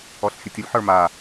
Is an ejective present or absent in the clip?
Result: absent